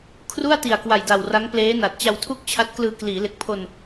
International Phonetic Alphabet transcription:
kʰru˥˩a̯ti˨˩a̯kwa˨˩jda˨˩w ra˦˥ŋpleː˦˥na˨˩t̚ t͡ɕa˧wtʰu˥˩k̚t͡ɕʰa˦˥t̚klɯː˧ kliː˩˦le˨˩k̚pʰo˧n

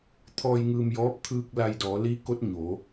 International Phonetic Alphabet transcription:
t̪ʰɔː˧jŋɯː˧mjɔː˧˥p̚ t̪ʰɯː˧k̚ la˧jdɔː˩˧liː˧˥ko˧˥t̚ ɲo˩˧

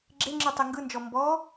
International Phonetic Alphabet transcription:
ɡ͡ǁeŋ͡ǁɯ tˤeŋɡɯnd͡ʒɔ mbɔ

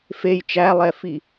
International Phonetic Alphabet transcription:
fej t͡ʃælˠɛfi

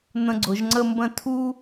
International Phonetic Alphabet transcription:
n̪ə̃˧ɡ͡ǀʊ˩˧ʒŋ͡ǀə˥˧mbə̃˥˧ tʰu˥

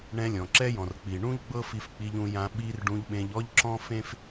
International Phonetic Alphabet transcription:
ɳɛ̃˧lʲɔ̃˨ǁɛ˦jɔ̃˨r k͡pi˨ɳũ˦ʎ ɡ͡bɤ˦fi˧fk͡pi˧ʎ ũ˧jã˧ ɓi˦r ɖũ˧ʎɓẽ˧ʎ ɔ˦ʎ ǁɔ̃˦fẽ˦f

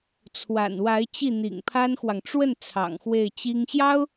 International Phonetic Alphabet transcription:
t͡sʰwa̰˨˩nwa˧˥ɪ̯ t͡ɕi˥˩n̪ḭ˨˩ŋpʰa˥nxwɑ˨ŋ ʈ͡ʂwə˥˩n t͡sʰɑ̰˨˩ŋxwe˥˩ɪ̯t͡ɕi˥ŋ ɕjɑ˥ʊ̯

